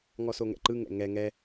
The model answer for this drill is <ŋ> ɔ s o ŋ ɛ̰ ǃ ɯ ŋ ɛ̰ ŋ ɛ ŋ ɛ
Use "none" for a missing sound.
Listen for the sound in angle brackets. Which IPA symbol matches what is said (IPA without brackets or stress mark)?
ŋ